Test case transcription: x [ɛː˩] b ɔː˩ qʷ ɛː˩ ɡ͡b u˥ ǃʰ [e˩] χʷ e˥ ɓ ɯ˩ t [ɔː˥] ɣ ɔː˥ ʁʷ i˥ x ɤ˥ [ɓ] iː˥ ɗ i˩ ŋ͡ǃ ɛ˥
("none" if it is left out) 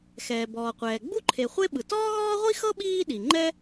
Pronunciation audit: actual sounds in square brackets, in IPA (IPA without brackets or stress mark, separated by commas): ɛː˩, e˩, ɔː˥, ɓ